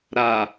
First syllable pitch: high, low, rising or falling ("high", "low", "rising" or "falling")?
low